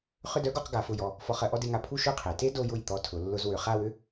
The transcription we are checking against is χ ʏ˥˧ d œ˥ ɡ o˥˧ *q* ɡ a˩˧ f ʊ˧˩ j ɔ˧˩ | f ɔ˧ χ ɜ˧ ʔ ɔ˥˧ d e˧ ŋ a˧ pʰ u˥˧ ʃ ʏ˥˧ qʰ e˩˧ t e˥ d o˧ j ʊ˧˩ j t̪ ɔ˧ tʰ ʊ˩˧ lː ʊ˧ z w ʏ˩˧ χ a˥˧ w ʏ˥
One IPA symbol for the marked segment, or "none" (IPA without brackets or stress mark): q